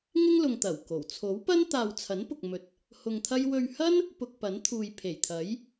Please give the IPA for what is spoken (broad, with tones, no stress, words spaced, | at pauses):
ŋɪ˥ŋlʊ˨ŋ t̪ɐ˨˩w ko˨˩w t͡sʰo˨˥wpɐ˥n t̪aː˧w t͡sʰɐ˨˥npʊ˨k̚ mɵ˨t̚ | hʊ˧ŋt̪ʰɐ˥j wɵ˧ɥ hɐ˥n | pʊ˧k̚pɐ˨˥n t̪ʰuː˨jpʰe˨˩jt̪ʰɐ˨˥j